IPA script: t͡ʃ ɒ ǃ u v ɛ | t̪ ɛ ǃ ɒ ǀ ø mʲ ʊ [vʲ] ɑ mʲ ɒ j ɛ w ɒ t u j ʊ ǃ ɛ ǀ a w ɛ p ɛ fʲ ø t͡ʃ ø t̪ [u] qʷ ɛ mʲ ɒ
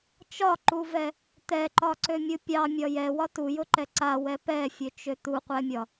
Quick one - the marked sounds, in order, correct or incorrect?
incorrect, correct

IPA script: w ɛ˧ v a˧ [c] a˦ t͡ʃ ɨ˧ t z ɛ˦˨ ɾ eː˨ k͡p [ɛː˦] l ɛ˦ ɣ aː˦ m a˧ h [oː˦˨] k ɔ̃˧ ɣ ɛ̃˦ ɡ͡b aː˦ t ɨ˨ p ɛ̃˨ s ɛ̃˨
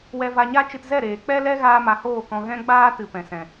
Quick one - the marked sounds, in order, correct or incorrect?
incorrect, incorrect, correct

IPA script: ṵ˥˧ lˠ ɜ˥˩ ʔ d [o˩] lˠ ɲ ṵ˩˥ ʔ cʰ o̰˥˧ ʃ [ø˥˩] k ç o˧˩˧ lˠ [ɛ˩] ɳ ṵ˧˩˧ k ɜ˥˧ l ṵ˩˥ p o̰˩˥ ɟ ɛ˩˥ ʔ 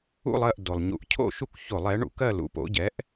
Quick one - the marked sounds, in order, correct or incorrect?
correct, incorrect, incorrect

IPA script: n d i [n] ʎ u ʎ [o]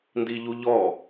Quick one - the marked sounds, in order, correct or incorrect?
incorrect, incorrect

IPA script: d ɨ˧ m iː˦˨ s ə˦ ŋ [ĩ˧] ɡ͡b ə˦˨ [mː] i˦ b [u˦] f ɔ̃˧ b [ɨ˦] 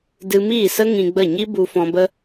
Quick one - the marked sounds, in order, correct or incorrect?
correct, incorrect, incorrect, incorrect

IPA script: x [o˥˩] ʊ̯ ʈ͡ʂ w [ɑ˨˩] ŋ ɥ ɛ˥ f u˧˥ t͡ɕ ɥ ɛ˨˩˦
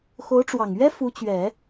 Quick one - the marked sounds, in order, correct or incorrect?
incorrect, correct

